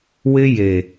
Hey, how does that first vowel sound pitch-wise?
high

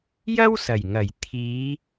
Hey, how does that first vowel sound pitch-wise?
high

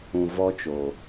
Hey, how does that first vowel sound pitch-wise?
low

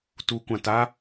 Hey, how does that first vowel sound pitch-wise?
rising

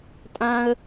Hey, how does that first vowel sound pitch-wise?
high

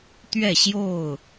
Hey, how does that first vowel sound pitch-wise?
falling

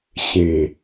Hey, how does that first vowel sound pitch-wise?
low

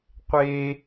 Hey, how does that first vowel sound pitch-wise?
high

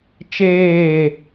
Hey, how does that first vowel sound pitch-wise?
falling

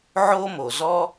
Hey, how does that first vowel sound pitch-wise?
high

